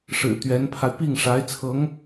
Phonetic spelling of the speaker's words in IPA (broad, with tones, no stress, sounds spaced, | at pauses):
ʂ ɻ̩˨˩ t̪ ɥ ɛ˧˥ n pʰ a˧ ɪ̯ p i˥˩ ŋ ʂ a˧˥ ɪ̯ t͡sʰ ɤ˧˥ ŋ